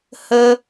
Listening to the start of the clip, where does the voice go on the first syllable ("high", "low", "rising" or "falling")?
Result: high